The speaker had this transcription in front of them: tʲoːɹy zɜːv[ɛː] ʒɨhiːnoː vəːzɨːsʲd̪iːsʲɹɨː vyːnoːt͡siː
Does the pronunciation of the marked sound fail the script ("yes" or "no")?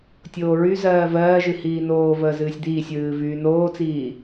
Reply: yes